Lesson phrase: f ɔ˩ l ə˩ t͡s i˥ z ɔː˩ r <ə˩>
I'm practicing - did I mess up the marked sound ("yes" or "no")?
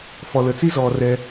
yes